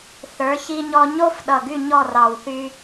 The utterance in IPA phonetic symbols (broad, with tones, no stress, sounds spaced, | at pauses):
θ ə˞˨˥ ç i˦ ɲ ɔ˦ ɲ o˦ f ɗ ʌ˨˩ ɡ y˦˨ ɲ ɔ˦˨ r ɑ˨˩ w θ y˦